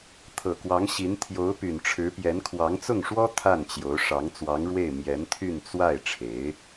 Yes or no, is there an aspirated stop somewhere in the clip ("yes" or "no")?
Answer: yes